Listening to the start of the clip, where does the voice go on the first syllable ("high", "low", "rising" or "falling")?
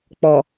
low